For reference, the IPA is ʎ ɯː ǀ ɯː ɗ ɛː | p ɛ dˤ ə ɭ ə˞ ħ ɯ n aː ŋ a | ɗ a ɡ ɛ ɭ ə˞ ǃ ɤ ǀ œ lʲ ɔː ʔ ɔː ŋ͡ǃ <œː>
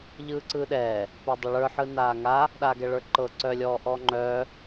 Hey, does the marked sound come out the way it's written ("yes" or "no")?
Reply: yes